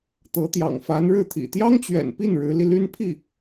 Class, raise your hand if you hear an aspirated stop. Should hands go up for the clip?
yes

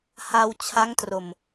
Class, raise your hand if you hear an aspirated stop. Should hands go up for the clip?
yes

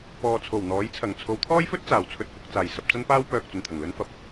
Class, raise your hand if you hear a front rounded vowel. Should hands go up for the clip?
yes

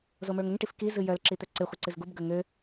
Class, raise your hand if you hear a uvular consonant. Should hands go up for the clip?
yes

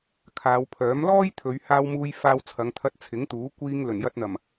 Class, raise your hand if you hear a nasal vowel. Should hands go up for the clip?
no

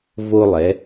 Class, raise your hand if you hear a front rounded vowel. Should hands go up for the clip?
no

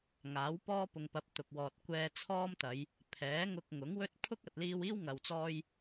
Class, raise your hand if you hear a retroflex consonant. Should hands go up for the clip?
no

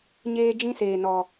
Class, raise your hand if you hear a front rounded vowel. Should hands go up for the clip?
no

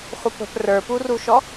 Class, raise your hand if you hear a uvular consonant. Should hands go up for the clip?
yes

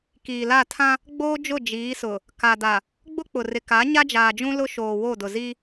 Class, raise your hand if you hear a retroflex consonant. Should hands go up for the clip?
no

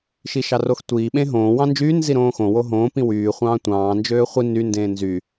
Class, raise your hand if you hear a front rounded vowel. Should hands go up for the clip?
yes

